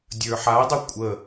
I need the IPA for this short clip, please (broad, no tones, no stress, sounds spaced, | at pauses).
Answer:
dʲ ə˞ ħ a dˤ ə kʷʼ ə